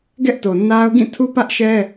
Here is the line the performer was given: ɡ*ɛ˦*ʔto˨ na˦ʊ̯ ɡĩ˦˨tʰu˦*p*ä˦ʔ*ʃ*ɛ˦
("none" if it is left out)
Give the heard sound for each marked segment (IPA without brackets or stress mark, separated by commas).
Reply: ɛ˦, p, ʃ